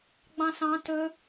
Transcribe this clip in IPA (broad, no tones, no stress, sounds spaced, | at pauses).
ɡ͡b ɑ̃ s ɑ̃ t ɵ